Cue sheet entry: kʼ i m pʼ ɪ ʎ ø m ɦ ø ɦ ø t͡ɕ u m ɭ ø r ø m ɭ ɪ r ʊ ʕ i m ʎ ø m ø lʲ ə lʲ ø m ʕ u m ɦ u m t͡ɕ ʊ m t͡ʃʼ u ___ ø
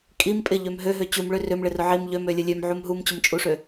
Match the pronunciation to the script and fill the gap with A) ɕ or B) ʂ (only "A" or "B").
B